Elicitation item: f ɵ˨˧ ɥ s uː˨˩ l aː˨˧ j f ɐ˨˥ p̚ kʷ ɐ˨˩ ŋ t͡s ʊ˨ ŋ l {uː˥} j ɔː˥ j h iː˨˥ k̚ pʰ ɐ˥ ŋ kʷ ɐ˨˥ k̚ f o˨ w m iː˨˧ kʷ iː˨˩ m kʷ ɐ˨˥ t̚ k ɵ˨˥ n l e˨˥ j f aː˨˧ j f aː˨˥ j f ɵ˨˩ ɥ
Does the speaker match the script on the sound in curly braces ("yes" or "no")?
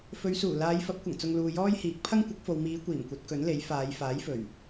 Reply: no